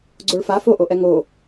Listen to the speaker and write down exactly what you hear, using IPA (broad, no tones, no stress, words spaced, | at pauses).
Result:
ɡ͡ǀoɭfa foʔoʔɛ ŋo